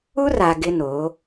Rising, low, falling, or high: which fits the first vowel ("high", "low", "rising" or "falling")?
high